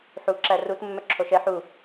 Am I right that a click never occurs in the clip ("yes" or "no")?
no